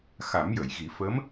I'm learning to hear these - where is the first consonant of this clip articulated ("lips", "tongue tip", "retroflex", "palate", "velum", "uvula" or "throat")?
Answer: velum